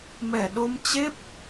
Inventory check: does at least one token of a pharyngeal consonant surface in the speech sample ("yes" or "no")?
no